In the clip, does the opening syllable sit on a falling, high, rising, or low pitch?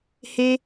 high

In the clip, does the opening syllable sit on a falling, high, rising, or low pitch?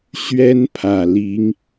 high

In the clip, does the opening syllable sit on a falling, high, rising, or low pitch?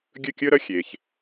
falling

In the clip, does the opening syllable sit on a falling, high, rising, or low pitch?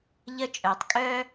high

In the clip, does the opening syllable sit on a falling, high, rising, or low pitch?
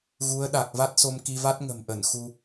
rising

